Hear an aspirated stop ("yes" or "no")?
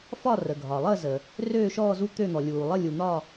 no